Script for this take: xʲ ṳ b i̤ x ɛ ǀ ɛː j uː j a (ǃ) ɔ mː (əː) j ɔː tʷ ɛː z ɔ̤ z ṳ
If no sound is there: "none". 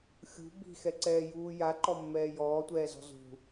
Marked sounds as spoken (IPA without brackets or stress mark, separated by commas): ǃ, ɛː